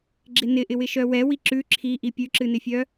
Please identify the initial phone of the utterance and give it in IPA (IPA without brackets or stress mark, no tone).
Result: ɡ͡ǁ